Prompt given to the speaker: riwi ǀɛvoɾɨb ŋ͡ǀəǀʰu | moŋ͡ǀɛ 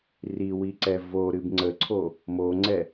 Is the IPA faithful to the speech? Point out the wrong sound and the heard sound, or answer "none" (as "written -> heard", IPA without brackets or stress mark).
u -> o